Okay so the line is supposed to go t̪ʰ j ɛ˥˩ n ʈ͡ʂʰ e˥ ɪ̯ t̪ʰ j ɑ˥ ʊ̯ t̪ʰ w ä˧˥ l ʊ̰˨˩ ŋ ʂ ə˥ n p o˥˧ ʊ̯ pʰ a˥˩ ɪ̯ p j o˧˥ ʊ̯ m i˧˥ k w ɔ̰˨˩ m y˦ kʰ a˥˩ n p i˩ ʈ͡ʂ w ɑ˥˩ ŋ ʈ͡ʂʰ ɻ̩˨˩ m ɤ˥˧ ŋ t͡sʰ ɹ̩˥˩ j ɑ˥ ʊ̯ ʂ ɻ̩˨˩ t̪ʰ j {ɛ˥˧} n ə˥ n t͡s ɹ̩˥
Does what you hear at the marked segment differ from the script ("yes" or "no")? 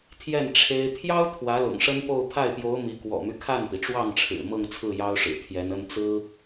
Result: yes